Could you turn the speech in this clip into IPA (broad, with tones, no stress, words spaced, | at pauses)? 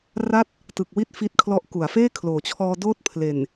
ra˥˩t̚ | tɯ˨˩k̚wi˦˥t̚ fi˥˩t̚ kʰlɔ˦˥ʔku˩˦a̯ feː˥˩kʰloː˨˩t͡ɕʰɔː˧doː˦˥t̚ pʰle˨˩n